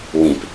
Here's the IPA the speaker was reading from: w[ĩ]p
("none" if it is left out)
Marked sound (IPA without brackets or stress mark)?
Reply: ĩ